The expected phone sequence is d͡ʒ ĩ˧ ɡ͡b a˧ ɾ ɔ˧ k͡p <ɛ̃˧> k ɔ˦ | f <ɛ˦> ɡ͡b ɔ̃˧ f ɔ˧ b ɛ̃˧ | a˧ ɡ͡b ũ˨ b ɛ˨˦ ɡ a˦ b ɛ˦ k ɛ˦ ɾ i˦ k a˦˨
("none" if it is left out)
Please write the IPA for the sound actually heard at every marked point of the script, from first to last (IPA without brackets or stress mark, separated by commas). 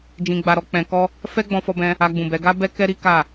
ɛ̃˧, ɛ˦